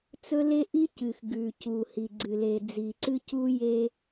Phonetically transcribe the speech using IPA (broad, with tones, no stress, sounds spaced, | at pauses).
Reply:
t͡s ɵ˦ l e˦ ʔ i˦ c ɨ˨ x ɡ ʉ˨ c u˨ h i˨ ɡ͡ǀ ɨ˨ l e˨ d͡z i˨ ǀ ɨ˦ c u˦ j e˦